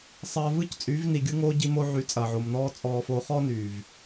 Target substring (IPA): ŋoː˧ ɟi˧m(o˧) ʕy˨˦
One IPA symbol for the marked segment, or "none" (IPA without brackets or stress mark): o˧